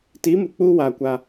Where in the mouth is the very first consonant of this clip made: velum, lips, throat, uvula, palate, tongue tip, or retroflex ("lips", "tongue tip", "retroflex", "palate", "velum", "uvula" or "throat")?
tongue tip